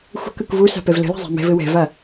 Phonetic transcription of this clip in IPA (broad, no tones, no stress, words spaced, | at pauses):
xʷə̤kɯk vusa̤ pɛvlə̤la̤ zˤa̤mɛ̤vɘ wɛ̤va